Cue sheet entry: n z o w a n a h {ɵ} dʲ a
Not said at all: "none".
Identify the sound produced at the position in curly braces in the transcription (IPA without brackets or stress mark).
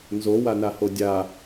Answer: o